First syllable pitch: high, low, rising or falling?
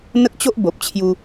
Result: high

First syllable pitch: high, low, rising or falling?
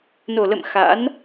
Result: low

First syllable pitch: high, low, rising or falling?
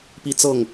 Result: high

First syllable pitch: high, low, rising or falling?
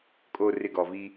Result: low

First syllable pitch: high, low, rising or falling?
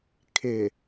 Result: low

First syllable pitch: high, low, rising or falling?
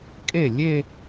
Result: falling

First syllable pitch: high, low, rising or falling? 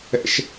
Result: low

